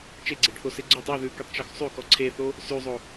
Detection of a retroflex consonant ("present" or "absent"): present